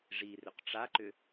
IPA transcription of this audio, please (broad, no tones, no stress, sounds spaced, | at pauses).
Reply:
ʐ i r ʏ q ʈ͡ʂ a ǃ ʏ